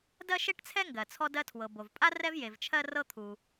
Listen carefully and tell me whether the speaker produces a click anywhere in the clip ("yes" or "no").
no